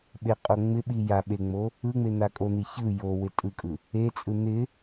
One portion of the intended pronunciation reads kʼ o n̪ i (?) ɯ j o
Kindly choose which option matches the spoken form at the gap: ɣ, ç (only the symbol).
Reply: ç